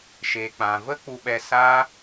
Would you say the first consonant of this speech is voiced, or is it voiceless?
voiceless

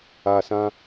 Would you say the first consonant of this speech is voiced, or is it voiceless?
voiceless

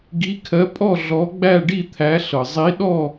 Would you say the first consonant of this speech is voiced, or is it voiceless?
voiced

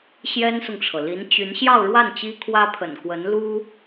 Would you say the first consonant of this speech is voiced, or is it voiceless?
voiceless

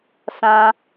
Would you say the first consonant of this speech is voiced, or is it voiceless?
voiceless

